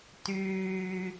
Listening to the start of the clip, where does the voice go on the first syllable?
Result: low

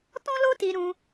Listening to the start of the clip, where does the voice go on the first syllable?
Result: high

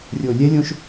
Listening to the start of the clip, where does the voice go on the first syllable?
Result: low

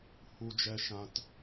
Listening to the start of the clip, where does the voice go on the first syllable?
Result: high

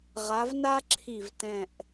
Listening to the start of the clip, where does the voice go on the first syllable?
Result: rising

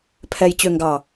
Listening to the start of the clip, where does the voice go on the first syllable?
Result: low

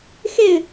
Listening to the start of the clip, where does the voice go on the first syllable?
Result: falling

